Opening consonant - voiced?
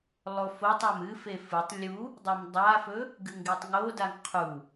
yes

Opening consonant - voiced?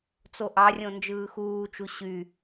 no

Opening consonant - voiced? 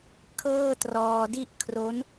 no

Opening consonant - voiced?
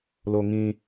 yes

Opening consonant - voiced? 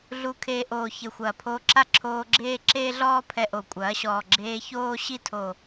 yes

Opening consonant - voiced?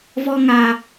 yes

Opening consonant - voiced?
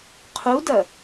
no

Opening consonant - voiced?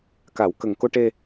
no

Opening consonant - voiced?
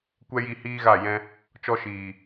no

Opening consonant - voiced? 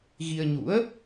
yes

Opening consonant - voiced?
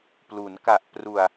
no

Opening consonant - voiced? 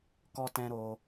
no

